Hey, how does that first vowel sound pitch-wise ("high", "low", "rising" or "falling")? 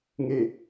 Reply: low